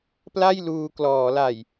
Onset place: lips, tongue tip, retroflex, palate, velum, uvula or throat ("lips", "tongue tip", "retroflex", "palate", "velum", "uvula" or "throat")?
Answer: lips